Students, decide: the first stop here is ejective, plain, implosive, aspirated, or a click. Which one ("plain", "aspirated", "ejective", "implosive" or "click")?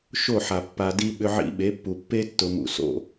plain